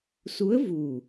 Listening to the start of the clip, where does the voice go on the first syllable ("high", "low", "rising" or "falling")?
rising